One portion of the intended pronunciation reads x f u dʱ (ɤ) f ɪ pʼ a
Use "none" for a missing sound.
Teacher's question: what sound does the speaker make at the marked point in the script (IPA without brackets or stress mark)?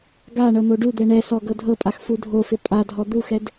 o